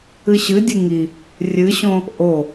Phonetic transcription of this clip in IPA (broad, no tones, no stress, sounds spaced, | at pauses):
ɨ ɕ ɨ dʲ ɨ ŋ i | rʲ ɨ ɕ õ | ʔ o